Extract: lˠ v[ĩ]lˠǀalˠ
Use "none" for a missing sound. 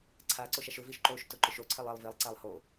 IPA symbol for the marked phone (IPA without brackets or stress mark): i